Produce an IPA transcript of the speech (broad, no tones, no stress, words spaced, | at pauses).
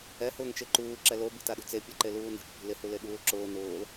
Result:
ɛ hʊːŋt͡ʃeǃuː ǁɛlo bi̤taɗṳt͡se pʲɛǃeluːne̤t͡ʃ pʲṳlɪ huleɠuːlǁʊː nʊːl